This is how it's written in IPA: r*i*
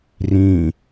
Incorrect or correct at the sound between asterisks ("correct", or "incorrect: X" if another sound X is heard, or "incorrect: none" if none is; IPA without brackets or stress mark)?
incorrect: ĩ